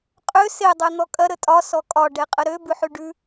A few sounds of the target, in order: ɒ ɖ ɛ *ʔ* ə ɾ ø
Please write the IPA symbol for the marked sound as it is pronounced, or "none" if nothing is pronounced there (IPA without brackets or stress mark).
qʼ